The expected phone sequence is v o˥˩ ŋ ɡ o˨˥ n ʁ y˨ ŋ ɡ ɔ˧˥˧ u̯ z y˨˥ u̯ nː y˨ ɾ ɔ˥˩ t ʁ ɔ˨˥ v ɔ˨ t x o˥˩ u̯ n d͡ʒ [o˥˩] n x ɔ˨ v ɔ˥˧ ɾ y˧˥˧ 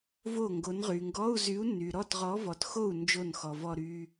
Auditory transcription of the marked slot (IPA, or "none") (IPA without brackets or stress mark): o˥˩